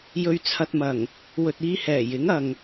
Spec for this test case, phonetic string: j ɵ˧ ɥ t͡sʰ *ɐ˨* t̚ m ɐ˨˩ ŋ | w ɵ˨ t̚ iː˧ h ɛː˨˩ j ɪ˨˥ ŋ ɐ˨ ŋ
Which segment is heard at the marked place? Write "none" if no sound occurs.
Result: ɐ˧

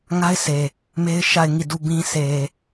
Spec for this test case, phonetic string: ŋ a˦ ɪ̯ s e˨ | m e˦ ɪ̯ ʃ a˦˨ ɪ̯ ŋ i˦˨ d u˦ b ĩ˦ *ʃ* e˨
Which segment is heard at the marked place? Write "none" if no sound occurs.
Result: s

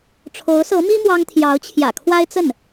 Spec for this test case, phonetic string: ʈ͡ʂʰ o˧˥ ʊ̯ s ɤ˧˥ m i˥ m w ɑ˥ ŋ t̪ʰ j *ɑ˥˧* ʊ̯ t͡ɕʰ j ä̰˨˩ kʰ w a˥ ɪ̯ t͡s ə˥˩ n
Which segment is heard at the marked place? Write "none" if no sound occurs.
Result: ɑ˧˥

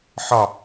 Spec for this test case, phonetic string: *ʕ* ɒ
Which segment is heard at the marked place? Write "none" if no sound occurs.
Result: ħ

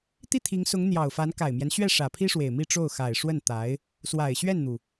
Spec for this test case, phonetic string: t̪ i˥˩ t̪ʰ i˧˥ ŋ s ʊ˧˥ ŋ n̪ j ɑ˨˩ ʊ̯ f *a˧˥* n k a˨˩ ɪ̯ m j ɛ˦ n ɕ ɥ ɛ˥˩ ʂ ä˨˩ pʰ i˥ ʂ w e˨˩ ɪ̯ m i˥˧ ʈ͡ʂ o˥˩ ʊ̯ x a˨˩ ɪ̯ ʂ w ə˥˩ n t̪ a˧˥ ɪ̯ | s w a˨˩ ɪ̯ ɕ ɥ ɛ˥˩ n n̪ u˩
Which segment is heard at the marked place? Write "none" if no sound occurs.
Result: a˧˥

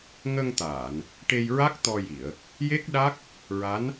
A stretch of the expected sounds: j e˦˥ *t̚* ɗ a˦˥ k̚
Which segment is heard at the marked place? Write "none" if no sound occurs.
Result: k̚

